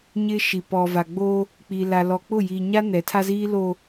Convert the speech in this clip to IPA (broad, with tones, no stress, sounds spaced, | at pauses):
ɲ ɪ˦ ʃ i˨ p ɔ˨ v a˨ ɡ͡b o˦ | k͡p i˨ l a˨ l ɔ˨ k͡p ʊ˦˨ j iː˨ ɲ a˦ n ɛ˨˦ tʰ a˦ z iː˦ l o˨